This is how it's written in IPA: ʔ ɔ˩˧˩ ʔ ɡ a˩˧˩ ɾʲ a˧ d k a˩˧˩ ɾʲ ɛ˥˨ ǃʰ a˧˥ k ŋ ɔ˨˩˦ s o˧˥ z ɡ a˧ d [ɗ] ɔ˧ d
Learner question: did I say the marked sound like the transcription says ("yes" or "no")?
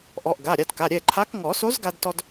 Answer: no